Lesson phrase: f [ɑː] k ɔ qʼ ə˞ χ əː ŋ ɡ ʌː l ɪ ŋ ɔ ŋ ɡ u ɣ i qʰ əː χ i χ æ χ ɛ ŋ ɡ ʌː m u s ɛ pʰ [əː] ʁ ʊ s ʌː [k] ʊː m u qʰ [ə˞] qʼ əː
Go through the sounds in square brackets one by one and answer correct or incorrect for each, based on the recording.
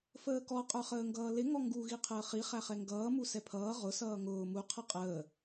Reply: incorrect: əː, incorrect: ʌː, incorrect: ŋ, incorrect: ʌ

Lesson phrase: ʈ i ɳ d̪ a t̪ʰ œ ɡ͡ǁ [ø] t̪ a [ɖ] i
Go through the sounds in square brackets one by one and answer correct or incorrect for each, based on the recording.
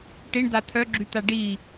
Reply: incorrect: y, correct

